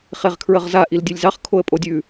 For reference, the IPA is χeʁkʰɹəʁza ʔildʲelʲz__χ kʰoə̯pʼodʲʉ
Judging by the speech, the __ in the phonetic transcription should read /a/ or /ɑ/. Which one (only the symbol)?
ɑ